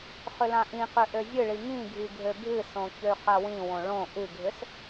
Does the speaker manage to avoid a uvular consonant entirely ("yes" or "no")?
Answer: no